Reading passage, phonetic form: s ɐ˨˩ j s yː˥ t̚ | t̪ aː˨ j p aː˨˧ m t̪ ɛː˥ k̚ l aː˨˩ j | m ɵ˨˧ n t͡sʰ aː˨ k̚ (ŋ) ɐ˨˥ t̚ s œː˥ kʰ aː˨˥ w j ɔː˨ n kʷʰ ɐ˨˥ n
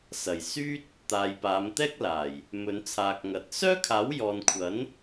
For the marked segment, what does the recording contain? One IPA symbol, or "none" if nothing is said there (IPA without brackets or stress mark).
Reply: ŋ